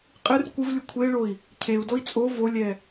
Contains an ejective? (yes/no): yes